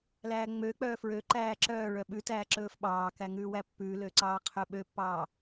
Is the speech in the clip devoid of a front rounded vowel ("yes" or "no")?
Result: no